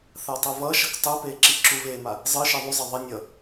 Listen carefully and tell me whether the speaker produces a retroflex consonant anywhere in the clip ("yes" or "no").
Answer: no